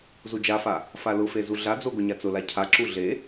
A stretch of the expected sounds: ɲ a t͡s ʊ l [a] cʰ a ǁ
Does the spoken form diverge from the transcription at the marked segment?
no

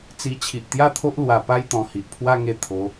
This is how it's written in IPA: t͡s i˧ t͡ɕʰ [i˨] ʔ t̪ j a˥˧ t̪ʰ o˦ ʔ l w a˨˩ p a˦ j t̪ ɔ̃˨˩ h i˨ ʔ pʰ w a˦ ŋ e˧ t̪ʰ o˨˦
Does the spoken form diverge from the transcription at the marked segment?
no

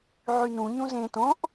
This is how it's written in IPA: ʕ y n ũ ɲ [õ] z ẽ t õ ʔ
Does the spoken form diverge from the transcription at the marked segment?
yes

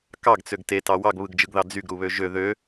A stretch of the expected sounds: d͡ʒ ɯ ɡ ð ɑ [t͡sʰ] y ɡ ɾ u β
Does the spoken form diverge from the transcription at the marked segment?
yes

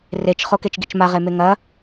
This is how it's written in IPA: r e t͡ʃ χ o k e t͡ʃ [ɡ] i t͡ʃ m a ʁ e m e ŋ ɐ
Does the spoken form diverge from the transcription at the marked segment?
no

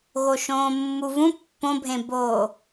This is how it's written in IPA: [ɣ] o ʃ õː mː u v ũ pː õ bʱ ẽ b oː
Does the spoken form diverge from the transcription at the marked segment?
no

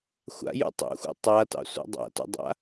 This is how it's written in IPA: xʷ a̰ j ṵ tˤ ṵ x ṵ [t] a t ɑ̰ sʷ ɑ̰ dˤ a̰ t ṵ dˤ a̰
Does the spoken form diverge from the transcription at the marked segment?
yes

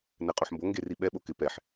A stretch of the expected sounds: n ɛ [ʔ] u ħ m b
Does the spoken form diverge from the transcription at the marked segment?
yes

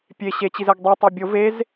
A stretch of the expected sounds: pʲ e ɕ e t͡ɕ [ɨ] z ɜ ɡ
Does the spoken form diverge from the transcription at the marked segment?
yes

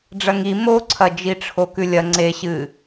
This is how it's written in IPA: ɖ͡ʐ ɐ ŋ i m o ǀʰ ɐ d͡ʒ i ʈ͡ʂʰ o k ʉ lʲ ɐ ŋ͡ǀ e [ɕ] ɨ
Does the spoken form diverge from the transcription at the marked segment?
no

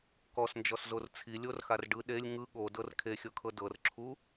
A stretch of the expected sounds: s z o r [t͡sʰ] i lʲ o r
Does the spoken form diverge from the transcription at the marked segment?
no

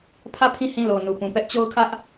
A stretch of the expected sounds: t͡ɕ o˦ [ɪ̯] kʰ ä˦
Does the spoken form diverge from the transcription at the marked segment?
yes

